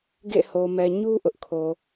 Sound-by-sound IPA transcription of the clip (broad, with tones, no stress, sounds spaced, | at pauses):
ɡ ḛ˦˨ h o˨ m ɛ˨ ɲ u˦ ʔ ʊ˦ ʔ kʰ o˨